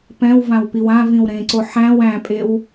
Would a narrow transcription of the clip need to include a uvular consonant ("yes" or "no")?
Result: no